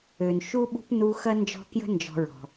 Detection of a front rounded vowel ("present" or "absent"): present